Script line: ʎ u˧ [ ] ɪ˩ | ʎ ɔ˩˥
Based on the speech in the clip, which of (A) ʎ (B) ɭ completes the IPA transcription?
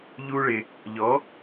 B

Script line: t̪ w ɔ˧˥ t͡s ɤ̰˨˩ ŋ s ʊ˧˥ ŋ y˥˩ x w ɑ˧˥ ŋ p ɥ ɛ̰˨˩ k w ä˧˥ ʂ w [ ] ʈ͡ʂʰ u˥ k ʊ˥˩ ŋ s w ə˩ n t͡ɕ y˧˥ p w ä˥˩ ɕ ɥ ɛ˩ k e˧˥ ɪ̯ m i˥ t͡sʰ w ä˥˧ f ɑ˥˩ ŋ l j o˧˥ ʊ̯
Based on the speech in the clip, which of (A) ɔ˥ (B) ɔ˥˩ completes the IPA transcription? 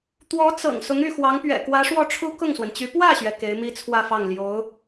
B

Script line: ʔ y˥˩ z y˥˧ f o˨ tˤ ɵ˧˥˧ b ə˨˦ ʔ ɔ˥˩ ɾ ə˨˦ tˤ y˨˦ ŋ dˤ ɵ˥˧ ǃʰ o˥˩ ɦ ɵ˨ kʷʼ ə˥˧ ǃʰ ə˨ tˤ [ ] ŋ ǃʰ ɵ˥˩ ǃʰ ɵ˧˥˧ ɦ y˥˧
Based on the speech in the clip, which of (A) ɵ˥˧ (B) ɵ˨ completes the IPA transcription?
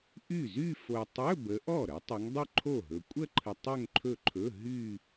A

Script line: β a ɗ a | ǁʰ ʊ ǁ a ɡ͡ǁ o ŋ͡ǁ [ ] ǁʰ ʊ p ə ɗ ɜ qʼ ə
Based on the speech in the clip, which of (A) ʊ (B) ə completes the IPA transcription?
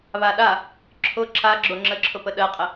B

